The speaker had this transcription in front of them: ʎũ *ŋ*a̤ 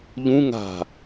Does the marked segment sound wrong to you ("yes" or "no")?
no